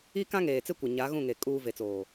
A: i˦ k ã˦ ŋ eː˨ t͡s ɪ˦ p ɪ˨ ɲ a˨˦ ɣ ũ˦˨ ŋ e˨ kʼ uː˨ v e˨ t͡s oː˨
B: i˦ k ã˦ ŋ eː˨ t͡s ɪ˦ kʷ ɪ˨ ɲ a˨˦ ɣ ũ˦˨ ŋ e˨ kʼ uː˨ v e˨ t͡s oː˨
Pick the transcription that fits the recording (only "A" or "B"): B